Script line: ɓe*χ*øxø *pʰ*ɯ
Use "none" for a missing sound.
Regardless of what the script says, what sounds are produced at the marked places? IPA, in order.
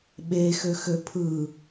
x, pʰ

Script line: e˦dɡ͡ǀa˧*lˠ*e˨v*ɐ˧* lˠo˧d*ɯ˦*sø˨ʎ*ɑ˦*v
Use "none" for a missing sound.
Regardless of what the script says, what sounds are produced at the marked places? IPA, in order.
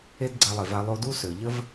lˠ, a˧, u˦, ə˦

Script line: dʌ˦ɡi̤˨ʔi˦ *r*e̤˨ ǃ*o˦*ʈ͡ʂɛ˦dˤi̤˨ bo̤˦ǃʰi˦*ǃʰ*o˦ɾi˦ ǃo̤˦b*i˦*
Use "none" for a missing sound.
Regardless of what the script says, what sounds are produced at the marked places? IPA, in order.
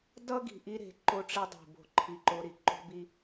ɾ, o˦, ǃ, i˦

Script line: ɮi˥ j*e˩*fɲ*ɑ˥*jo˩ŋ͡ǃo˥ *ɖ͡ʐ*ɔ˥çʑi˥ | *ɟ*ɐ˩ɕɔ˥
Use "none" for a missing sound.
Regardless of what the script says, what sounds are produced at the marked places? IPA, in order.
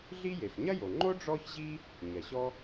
e˩, ɐ˥, ɖ͡ʐ, ɲ

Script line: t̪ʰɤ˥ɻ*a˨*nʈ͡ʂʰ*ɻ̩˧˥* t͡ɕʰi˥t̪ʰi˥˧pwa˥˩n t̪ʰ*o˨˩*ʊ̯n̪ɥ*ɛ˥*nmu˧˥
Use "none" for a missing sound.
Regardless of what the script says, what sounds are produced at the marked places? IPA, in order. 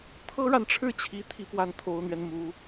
a˨, ɻ̩˥˩, o˧˥, ɛ˧

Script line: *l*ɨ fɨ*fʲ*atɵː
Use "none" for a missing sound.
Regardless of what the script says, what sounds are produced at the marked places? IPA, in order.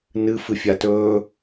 n, fʲ

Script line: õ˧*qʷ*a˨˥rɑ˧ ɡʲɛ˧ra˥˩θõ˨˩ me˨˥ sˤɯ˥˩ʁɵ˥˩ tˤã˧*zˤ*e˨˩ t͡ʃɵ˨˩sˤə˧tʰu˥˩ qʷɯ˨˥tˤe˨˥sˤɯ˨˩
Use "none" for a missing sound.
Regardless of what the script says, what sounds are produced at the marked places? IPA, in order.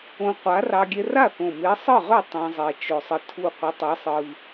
qʷ, zˤ

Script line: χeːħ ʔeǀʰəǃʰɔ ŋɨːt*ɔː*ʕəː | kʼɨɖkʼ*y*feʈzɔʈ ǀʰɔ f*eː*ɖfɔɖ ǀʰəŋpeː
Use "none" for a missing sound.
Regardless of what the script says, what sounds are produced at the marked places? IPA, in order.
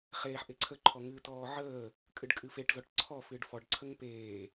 ɔː, ɨ, ɨː

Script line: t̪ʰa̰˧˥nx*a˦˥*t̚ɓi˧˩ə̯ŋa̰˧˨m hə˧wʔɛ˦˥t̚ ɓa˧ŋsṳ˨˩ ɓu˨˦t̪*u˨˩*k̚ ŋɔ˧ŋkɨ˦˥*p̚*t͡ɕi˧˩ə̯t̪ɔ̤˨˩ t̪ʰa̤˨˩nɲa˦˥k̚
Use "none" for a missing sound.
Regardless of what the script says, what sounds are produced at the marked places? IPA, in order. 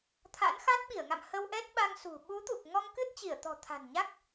a˦˥, u˨˩, t̚

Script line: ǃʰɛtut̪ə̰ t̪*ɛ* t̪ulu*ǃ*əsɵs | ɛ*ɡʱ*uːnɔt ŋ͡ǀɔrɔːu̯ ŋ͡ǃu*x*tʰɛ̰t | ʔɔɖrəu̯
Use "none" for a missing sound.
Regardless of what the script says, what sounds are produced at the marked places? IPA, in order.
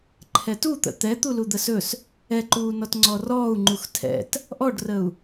ɛ, d̪, ǃ, x

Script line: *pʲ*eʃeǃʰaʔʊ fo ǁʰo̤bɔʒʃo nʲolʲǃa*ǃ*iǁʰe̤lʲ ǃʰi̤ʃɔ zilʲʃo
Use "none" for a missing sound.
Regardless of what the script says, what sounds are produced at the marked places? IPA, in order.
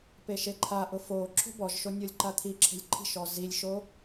p, t̪ʰ

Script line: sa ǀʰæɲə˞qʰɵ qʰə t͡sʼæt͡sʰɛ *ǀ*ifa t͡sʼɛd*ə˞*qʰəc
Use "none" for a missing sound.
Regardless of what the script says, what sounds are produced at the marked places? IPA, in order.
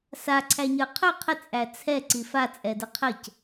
ǀ, ə

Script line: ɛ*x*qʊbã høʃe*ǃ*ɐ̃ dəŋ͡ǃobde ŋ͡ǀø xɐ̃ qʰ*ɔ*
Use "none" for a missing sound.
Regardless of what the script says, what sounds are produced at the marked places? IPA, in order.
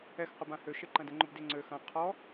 x, ǃ, ɔ

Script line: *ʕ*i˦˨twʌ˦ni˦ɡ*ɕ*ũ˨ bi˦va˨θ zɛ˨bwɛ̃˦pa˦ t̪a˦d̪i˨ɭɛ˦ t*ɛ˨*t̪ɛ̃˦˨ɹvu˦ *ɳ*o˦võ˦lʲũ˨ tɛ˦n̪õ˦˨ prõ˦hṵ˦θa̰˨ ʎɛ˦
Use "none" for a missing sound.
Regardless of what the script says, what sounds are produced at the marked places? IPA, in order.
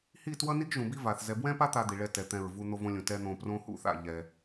h, ʒ, ɛ˨, n̪

